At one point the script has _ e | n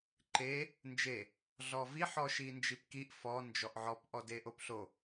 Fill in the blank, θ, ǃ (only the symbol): ǃ